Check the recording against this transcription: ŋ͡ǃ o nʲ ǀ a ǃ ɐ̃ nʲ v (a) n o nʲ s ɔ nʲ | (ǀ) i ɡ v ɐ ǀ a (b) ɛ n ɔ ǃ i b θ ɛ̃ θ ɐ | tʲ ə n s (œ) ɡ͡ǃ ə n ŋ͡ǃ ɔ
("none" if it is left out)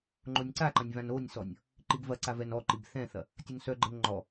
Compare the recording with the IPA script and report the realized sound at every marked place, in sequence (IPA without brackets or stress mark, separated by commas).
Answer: ã, ǃ, v, œ